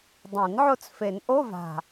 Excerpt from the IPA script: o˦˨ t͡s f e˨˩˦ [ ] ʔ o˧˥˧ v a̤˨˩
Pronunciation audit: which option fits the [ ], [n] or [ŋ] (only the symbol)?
n